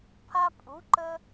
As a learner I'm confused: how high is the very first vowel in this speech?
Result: low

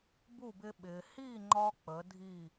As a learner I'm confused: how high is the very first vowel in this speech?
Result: high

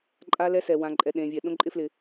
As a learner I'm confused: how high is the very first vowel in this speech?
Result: low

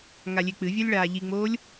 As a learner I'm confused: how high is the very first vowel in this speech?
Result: low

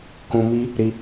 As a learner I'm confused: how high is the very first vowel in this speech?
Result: high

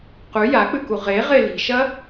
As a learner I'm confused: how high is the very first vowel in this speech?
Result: high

